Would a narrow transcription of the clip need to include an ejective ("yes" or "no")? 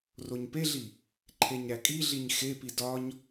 yes